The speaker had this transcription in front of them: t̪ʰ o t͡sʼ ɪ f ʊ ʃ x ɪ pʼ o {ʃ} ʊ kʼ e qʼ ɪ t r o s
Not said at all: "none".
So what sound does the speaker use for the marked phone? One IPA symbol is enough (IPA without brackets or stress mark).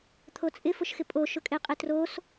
ʃ